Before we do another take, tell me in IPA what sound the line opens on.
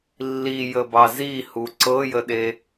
lː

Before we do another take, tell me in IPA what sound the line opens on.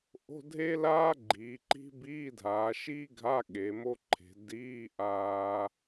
ʔ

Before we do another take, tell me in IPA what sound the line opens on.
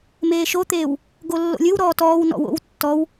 m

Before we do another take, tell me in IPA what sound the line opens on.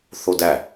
θ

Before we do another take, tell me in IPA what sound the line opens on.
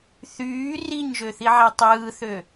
θ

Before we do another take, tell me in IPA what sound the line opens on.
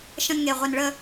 ʃ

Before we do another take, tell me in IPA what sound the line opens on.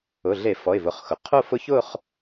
ʊ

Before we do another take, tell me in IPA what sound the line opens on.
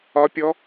ɒ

